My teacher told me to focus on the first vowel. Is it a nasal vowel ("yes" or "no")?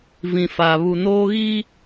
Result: yes